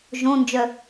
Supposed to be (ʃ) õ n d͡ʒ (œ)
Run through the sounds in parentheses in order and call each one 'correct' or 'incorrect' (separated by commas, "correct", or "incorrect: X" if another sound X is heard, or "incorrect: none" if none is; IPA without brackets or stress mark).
incorrect: ʒ, correct